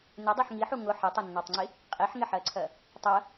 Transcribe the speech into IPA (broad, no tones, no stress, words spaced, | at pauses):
nɪdˤɜħ ŋiħu ŋʊ ħɪtˤʊnːɔtˤŋ͡ǀi | qʼiħŋɪħɜǀʰɜ | tˤɜ